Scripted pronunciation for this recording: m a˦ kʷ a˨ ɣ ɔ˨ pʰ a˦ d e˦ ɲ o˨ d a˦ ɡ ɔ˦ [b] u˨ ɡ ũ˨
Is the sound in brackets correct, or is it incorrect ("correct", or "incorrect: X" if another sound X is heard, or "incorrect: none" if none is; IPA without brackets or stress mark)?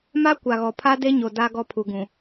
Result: incorrect: pʰ